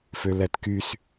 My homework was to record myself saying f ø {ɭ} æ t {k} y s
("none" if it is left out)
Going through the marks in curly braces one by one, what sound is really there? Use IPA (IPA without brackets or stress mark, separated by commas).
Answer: l, k